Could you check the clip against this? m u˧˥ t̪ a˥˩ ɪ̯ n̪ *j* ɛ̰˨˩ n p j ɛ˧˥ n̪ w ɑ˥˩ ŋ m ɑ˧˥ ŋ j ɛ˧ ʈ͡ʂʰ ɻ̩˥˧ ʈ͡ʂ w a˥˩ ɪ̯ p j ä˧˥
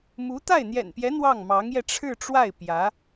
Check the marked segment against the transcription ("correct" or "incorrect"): correct